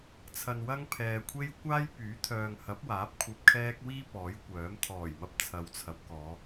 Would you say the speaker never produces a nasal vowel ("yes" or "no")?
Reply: yes